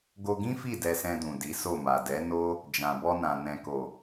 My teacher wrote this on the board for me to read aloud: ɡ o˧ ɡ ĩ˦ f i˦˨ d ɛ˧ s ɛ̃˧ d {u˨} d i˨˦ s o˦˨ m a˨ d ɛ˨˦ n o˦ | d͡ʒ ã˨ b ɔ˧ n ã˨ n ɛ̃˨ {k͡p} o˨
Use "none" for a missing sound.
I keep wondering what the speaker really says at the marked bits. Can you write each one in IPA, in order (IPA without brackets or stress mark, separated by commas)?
ũ˨, k